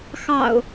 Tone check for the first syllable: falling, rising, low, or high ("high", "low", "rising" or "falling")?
low